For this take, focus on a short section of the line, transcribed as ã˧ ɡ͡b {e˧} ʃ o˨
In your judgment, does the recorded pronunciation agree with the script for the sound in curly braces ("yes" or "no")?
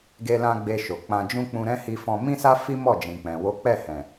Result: yes